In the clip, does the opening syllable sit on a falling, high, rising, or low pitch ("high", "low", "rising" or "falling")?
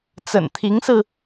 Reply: low